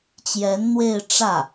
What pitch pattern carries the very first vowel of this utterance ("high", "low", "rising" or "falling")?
rising